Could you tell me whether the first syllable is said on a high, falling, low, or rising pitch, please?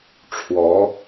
rising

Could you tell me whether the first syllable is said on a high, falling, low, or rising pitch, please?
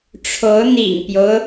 rising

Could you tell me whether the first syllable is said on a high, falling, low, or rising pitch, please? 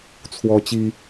high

